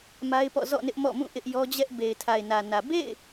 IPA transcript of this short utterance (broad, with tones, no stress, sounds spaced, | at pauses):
m a˦ ɪ̯ p ɔ̰˦˨ z ɔ̰˦˨ n ɪ˦ ʔ m ɔ̰˦˨ m ũ˦˨ ʔ ɪ˦ ʔ j ɔ˦ d͡ʑ ɛ˦ ʔ b e˨ ɪ̯ tʰ a˨ ɪ̯ n ä˨ n ä˨ b ḛ˦˨ ɪ̯